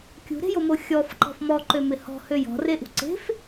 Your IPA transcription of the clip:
kʲ ṳ ɾ e̤ j o m o xʲ ɔ f ǃ ɔ̤ f m ɔ ǃ ø m ɪ h ɔ̤ h ø j ɔ̤ r e ʔ ṳ ǀ e̤ f

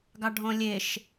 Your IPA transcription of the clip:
ɡ ɑ ɖʱ ɔ̃ lʲ e ʃ

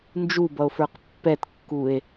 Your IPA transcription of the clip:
n d͡ʒ u b ʌ o̯ f ə˞ q pː ɛ t kː u e̯

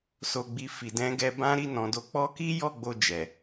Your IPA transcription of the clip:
s o˨ ɡ͡b i˨ f i˨ d ɛ̃˨˦ ɡ ɛ˧ b ã˦ ɾ i˦˨ n ɔ̃˨ d o˨˦ k͡p ɔ˦ k i˦ j ɔ˦˨ ɡ͡b o˧ d͡ʒ ɛ˨

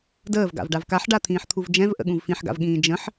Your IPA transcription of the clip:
d əː v ɡ a̰ v ɖ a v k a ħ ɖ a t̪ʰ ĩː ħ t̪ʰ u v d͡ʒ ɛ̃ v ʔ ə̰ ɠ ũ v f ĩ ħ ɡ a̰ v ɠ ĩː d͡ʒ ə̃ ħ

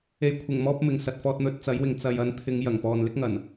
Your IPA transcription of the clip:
e˨ j kʷʰ ɪ˨˩ ŋ m ɔː˧ p̚ m ɪ˨ ŋ s ɐ˨ t̚ f ɔː˧ t̚ n̪ ɵ˧ t̚ t͡s ɐ˨˥ j w ɪ˨ ŋ t͡s ɐ˨ j ɐ˧ n t̪ʰ ɪ˨˧ ŋ j ɐ˨˩ ŋ p ɔː˨ n l ɪ˥ k̚ ŋ ɐ˨˩ n

